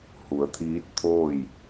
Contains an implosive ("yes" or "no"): no